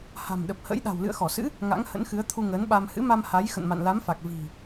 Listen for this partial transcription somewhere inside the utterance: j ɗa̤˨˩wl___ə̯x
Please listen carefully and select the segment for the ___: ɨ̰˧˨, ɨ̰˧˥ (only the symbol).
ɨ̰˧˨